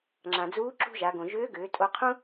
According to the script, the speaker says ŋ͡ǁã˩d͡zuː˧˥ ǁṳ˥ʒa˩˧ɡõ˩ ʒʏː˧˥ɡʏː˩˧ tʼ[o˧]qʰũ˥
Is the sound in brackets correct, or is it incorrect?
correct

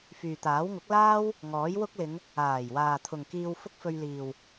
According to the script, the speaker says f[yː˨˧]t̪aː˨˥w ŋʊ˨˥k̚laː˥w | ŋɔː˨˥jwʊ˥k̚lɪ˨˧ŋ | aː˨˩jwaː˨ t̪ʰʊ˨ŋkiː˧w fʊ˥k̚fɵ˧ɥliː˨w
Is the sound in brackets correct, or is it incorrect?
incorrect: yː˨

